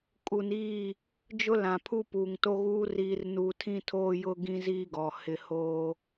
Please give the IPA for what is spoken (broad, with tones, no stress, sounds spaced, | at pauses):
kʼ u˨ n iː˦˨ | d͡ʒ ʊ˦ l ã˨ pʰ u˦ p uː˨ ŋ t o˦ ɣ uː˦ r iː˦ r n u˦ tʰ ĩ˦ tʰ oː˦ j ʊ˦ ɡ ĩ˦ z iː˦ ɡ ɔ˨ h ɪ˦ h oː˦